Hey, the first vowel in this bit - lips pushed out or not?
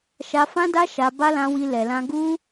no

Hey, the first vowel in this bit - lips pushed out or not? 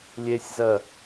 no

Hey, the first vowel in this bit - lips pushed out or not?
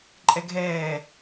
no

